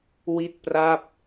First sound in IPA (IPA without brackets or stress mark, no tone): w